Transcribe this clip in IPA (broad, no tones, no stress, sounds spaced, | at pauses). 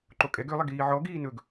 ǃ o kʼ ɛ ɡ ø lˠ ɛ ɡ iː ʕ ɔ ɡ iː n ɵ ɡ